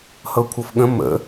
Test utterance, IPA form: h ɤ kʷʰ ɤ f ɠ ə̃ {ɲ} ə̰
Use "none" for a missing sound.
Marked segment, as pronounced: m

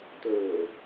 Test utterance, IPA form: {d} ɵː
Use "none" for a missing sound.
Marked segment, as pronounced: t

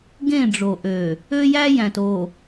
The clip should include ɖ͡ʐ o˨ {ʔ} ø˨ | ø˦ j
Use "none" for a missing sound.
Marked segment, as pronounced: ʔ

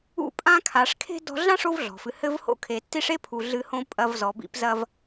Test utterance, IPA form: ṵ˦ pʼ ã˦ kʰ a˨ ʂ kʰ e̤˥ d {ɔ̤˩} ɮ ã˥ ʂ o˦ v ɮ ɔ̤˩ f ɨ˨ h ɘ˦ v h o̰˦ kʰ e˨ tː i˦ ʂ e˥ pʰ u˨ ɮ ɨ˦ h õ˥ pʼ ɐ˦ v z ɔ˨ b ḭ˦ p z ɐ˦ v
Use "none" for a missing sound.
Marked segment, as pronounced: ɔ̤˦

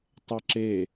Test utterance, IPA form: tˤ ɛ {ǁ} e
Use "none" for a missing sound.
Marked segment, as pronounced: ǁ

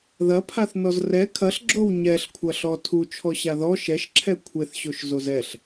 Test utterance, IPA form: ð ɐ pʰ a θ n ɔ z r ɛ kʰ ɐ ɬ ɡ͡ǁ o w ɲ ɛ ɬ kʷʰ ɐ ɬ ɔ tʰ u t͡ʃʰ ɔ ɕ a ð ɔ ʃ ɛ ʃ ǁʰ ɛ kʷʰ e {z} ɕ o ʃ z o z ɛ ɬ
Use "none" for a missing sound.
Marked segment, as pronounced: θ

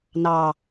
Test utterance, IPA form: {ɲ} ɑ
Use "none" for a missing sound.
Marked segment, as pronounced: n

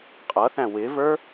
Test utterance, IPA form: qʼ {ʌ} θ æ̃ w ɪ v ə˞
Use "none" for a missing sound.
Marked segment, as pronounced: ʌ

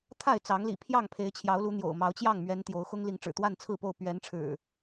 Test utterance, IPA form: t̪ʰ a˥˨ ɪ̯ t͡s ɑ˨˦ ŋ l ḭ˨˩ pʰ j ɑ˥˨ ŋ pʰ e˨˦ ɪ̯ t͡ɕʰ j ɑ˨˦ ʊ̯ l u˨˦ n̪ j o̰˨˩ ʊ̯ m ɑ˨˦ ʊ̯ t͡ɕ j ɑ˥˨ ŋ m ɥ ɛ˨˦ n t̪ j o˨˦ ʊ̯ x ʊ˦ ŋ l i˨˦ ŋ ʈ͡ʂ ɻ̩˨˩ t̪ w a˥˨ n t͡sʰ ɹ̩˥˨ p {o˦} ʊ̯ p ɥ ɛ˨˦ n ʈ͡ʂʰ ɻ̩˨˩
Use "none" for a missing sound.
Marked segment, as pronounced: o˥˨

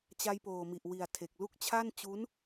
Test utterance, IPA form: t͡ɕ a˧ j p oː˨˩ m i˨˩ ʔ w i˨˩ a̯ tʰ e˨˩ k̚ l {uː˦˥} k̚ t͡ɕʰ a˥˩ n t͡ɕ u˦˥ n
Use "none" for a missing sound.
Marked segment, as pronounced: u˦˥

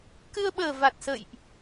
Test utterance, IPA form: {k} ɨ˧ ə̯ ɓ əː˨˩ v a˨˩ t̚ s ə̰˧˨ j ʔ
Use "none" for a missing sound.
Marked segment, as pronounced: k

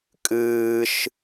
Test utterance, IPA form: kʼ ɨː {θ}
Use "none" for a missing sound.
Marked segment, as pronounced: ʃ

